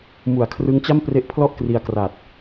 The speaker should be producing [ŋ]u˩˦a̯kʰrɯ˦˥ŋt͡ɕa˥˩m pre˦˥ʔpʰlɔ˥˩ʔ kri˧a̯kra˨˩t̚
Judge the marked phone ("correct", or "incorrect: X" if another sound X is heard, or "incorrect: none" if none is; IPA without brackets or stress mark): incorrect: m